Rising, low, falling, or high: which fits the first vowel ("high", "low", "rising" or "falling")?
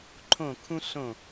falling